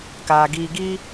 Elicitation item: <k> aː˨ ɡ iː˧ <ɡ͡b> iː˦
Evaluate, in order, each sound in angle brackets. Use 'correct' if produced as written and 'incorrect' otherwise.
correct, incorrect

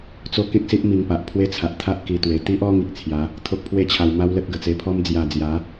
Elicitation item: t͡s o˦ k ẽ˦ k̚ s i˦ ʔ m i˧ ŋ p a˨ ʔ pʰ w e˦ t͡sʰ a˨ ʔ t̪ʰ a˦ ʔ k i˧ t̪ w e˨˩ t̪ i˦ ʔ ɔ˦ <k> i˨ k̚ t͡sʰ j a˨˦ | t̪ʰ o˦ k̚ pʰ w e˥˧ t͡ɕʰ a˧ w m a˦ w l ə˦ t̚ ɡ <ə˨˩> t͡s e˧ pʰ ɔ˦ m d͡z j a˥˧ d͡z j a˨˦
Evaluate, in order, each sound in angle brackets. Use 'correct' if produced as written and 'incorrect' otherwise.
incorrect, correct

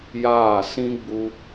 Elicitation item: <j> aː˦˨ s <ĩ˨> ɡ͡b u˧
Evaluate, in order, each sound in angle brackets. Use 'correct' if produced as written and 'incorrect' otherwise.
correct, incorrect

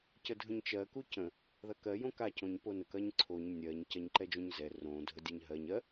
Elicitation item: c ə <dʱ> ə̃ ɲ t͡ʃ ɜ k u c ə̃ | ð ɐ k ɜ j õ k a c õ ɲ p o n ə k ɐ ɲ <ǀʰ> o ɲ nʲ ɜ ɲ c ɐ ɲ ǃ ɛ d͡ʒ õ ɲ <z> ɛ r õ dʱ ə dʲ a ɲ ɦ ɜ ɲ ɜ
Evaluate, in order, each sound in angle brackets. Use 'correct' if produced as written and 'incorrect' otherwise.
correct, correct, correct

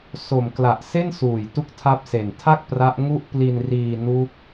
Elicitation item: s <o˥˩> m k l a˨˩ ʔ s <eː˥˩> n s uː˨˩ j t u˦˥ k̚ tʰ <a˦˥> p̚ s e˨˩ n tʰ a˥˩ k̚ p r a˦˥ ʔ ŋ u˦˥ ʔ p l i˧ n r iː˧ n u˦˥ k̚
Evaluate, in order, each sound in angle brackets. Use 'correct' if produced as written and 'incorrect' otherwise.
incorrect, incorrect, correct

